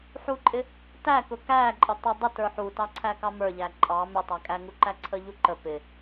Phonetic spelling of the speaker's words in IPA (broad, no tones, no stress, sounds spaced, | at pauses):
ħ u ǃʼ ɪ | t æ k ʊ k æ ǃʼ ə tˤ ə dˤ ʊ t ə˞ ħ u t ɑ ǀʰ æ k ɑ m ə˞ ʎ æ ǃʼ ɑ m ɪ tˤ æ kʼ æ ŋ u ǃ æ ǀʰ ə ʎ u ǃ ə p ɪ